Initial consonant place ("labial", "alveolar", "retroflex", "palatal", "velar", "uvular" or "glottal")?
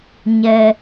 palatal